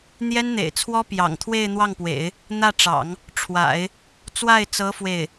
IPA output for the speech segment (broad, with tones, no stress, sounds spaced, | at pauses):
n̪ j ɛ˥ n n̪ ḛ˨˩ ɪ̯ t͡sʰ w ɔ˥ p j ɑ̰˨˩ ŋ t̪ʰ w e˥˧ ɪ̯ n̪ w ɑ˥˩ ŋ p w ḛ˨˩˦ ɪ̯ | n̪ ä˥˩ ʈ͡ʂ ɑ̰˨˩˦ ŋ | ʈ͡ʂʰ w a̰˨˩˦ ɪ̯ | t͡s w a˥˩ ɪ̯ t͡s ɤ˧˥ f w e˥˩ ɪ̯